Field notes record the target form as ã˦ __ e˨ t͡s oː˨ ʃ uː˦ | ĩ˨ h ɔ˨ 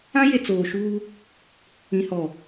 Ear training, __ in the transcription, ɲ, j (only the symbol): j